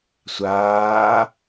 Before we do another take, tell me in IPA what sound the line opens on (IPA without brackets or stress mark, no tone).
sʷ